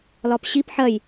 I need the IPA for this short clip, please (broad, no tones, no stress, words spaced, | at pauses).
lɒpɕip ħɜj